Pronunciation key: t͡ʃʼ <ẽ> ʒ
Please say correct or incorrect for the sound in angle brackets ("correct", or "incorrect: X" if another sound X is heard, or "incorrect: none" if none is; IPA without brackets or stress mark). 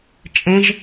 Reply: correct